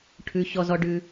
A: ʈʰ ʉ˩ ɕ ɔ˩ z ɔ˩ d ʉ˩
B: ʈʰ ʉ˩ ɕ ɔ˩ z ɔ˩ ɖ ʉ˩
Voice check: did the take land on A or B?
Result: B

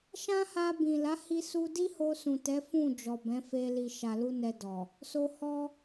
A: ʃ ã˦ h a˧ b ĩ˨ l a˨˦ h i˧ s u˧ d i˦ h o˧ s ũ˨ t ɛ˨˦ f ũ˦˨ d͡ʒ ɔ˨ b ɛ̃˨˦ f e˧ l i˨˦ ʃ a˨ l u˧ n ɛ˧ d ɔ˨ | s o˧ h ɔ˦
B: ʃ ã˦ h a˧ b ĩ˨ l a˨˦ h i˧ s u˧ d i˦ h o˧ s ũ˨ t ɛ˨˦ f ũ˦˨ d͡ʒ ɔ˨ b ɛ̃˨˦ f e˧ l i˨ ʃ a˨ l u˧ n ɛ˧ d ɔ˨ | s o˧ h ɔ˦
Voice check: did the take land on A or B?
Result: B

